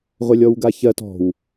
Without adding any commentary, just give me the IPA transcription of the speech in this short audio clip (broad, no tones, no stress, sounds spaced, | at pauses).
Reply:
ʁʷ ɛ lʲ ɔ w ɡ a ç ɜ t ɔ̤ w